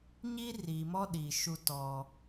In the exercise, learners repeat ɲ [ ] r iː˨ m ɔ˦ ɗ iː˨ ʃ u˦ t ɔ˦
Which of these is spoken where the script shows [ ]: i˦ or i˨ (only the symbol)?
i˦